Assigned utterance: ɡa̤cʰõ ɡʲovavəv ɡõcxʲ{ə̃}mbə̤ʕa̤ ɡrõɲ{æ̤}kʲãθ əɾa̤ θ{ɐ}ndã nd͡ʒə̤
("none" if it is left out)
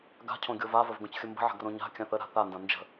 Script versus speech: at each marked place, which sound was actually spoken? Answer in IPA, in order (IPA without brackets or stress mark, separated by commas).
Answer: ə, a̤, a